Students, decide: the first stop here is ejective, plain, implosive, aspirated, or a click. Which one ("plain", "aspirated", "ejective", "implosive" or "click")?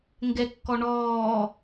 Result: plain